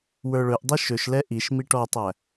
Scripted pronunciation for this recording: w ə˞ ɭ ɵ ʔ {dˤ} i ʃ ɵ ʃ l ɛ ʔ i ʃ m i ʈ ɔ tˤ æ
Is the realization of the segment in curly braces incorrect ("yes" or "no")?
no